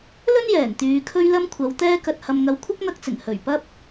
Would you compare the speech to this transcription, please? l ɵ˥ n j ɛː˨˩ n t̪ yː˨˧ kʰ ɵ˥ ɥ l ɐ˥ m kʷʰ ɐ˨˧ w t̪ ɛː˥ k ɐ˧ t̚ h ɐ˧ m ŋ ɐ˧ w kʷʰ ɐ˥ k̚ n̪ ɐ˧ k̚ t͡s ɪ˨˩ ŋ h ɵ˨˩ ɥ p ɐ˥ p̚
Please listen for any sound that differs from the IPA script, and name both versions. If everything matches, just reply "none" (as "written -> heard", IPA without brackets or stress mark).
none